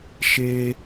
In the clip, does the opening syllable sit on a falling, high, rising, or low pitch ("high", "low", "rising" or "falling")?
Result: high